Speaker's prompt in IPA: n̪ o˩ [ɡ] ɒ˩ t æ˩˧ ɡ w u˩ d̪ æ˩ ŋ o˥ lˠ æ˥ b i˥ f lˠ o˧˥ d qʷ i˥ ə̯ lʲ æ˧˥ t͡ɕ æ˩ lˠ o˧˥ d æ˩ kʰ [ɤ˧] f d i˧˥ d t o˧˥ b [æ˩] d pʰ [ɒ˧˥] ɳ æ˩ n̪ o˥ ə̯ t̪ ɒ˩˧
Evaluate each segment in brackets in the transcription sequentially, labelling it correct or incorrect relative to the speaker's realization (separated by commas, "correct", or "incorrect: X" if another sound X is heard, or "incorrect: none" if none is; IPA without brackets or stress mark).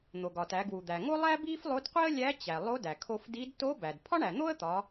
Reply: correct, incorrect: o˧, correct, incorrect: ɒ˥